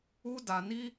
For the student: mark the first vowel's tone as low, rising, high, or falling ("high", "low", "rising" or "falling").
high